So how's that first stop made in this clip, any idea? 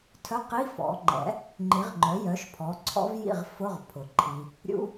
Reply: aspirated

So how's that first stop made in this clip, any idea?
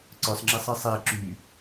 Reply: click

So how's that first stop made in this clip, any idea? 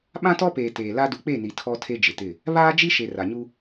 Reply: implosive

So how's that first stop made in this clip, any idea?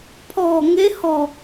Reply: aspirated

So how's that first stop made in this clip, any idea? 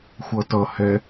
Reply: plain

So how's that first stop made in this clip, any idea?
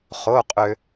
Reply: ejective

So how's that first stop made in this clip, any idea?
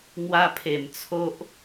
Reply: aspirated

